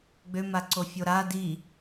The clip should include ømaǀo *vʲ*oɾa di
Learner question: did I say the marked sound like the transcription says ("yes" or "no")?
no